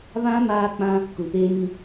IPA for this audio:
βã˦ maː˦k͡pã˦ | ku˨peː˦mĩ˦

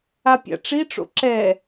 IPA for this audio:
apʲa̰ʈ͡ʂiʈ͡ʂo̰ ǁɛ

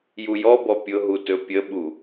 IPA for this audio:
jujɔbɔ pʲʊɦu tɵpʲəɓu

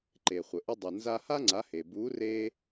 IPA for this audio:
ǃe˩χʷə˩ ʔʏ˧dˤu˩nza˧ha˥ ŋ͡ǀa˩˥he˩ bu˩˥re˧

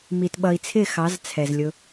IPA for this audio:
mi˨tɓʌ˨i̯t͡sʰɪ˦˨ xɑ˨˦zt͡sʰɛ˨zlʲʊ˧

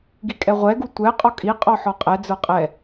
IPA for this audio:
ɡikʼɛʁʷɛɡu tʷɛ qʼɔkʼi qʼɔħɔqʼɛ d͡zə˞qʼɛ

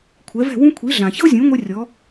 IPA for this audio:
kʷʰɛ˩˥vɛ̤˥˩wũ˥ kʷʰi˩˥ɮã˩çɤ˥zʲũ˩˥ ŋʷɛ˥rʲɔ˩˥

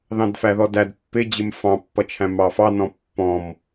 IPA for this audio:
ðɑ̃dfæðɔdæd pːɪd͡ʑɪm fɑ̃pːʌt͡ʃʰæ̃ mɑfɑnɔ̃ pːɔ̃m

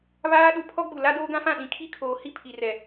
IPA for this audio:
βaː˦ ɗu˨pʰɔ˦ɡ͡bu˨ la˦doː˦ɡã˦fã˦˨ ɗĩ˨kʰi˦kʰoː˨hi˦ pʰi˨rɛ˨

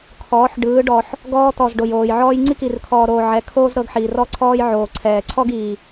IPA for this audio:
kʰɔː˨˦ħɖɯː˨˦ɖɔ˨ħ | ɡɔː˧t̪ɔ˨z ɖo˨joː˨jʕɔː˦j ŋ͡ǀi˦ki˨rkʰɔː˨ɾoː˨ ʕɛ˨˦ kʰoː˦zɾɤ˧ɡħiː˨r ɔ˦ǀʰɔː˦j ʕoː˨ǀʰɛː˨ ǀʰɔ˦ɡiː˨

